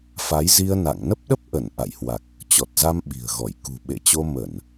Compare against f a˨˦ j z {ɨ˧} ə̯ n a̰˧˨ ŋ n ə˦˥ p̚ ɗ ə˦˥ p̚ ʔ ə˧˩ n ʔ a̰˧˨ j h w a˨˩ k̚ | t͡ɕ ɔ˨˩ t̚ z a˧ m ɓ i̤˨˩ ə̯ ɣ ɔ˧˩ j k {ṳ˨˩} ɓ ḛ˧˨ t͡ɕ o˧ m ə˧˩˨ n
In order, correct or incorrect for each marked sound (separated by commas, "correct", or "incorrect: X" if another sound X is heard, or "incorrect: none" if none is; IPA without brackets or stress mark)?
incorrect: i˧, correct